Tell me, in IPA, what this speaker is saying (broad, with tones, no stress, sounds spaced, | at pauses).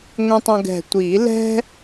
ŋʷ ĩ˧ tˤ õ˧ ɡ ɛ̤˨˩ tʷ i˨˩˦ l ɛ̤˥